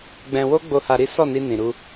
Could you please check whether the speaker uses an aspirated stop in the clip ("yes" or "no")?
no